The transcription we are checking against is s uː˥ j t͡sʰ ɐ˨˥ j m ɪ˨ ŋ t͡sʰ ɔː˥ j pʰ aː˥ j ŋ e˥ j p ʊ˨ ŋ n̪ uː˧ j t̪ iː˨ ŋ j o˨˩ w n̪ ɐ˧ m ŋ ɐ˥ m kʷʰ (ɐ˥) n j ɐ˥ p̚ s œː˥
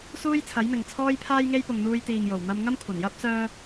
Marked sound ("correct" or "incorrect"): incorrect